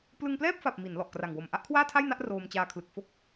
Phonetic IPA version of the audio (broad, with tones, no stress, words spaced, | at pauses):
plɯ˧ŋplɛː˥˩p̚fa˨˩p̚ mi˩˦n lɔ˨˩ʔkra˨˩ŋwo˨˩m ʔa˦˥ʔkʰwaː˥˩tʰa˥˩jna˥˩ʔ roː˧mt͡ɕaː˧kʰlɯ˨˩k̚ fo˥˩k̚